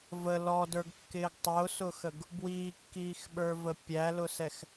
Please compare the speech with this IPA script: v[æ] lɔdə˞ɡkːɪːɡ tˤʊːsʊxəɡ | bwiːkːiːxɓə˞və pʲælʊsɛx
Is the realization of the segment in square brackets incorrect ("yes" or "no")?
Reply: yes